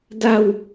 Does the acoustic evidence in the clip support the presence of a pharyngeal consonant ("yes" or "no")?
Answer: no